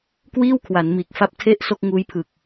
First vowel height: high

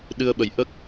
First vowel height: high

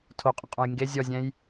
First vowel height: mid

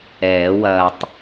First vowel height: mid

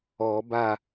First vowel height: mid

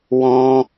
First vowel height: mid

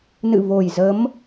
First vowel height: high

